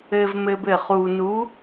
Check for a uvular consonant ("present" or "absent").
present